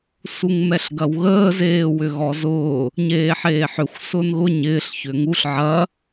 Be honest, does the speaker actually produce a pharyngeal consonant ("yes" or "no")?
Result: yes